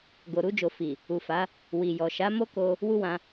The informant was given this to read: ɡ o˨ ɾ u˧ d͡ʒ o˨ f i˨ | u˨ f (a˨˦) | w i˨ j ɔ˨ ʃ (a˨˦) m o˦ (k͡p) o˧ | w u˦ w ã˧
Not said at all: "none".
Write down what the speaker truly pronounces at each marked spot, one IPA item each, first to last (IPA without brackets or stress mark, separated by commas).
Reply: a˨˦, a˨˦, k